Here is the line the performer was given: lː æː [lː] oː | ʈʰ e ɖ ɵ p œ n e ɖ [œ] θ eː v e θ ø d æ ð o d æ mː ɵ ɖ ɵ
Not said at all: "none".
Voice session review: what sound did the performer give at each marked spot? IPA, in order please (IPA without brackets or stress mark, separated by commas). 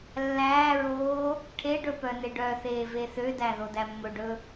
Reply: ɹ, œ